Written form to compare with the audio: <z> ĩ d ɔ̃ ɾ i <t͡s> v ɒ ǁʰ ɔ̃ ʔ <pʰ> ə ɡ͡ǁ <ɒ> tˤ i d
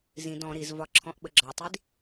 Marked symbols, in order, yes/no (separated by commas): yes, no, no, yes